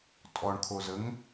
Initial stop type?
ejective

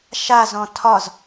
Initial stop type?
aspirated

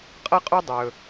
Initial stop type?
ejective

